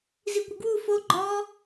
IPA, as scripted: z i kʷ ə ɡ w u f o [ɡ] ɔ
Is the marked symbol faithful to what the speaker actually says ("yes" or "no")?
no